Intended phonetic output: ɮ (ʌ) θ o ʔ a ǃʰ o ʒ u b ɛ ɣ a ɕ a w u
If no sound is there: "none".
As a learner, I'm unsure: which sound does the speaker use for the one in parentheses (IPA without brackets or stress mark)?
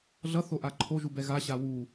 ʌ